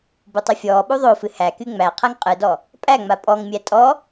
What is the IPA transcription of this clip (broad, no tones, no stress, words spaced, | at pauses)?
butˤufʲɔː ɓuðˤofɨ hæky ŋ͡mæ qʰæŋqʼɨdɔ | pʼæŋ͡ma pʼɔŋmʲæ tʼɔ